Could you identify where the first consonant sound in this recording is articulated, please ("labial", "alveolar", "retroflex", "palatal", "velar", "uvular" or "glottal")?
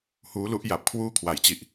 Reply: glottal